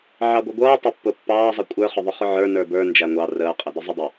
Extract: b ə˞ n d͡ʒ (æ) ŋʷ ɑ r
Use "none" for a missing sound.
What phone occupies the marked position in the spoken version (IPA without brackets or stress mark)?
æ